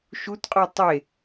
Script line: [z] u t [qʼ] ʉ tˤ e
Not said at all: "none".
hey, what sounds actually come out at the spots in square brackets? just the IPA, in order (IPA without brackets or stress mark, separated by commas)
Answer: ʃ, qʼ